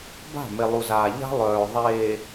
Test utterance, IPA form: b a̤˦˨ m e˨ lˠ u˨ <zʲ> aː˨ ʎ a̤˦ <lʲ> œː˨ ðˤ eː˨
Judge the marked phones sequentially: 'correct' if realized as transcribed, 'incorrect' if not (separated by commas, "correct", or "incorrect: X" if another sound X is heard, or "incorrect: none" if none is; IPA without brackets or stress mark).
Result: incorrect: z, incorrect: lˠ